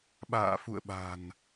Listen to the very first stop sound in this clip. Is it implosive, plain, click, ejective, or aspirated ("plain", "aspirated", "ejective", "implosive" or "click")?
implosive